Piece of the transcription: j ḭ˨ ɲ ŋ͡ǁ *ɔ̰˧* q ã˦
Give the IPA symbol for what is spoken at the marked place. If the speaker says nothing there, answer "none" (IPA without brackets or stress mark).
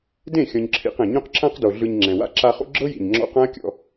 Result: ɔ̰˧